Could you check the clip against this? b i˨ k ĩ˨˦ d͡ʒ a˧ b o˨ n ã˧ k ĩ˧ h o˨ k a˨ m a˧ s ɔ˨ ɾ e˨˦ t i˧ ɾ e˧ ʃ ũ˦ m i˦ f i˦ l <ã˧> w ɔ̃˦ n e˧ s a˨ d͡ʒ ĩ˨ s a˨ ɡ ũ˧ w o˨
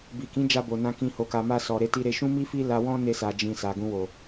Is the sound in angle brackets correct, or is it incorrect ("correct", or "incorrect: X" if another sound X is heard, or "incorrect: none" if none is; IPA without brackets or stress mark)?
incorrect: a˧